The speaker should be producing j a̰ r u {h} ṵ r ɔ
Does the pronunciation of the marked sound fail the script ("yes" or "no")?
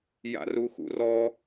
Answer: yes